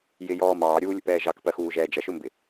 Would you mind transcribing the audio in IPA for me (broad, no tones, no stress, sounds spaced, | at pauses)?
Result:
j ɪ j ɔː m ɑː ɾʲ uː lʲ ə̰ p ɛː ʒ ɑ k p ɜ x uː ʒ ɛː d͡ʒ ʌ ʃ ʊ m b ɪ